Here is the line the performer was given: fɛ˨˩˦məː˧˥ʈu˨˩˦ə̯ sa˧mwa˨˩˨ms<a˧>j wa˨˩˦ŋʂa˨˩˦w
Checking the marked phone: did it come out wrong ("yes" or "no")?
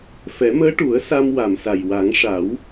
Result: yes